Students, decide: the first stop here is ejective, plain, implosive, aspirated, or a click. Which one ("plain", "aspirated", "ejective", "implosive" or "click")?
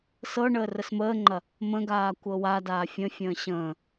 click